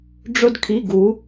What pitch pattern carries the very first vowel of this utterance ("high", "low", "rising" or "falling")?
high